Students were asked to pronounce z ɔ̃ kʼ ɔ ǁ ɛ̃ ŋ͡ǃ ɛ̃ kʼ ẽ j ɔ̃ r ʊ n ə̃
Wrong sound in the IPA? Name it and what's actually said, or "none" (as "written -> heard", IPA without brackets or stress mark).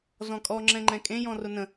ǁ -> ŋ͡ǁ